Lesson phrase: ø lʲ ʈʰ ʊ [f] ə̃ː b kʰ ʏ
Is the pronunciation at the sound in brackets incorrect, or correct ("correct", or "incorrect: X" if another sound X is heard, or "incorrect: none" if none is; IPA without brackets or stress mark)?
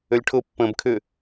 incorrect: pː